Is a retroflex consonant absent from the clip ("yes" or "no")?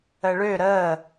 no